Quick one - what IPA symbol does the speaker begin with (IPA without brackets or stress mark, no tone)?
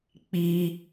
k͡p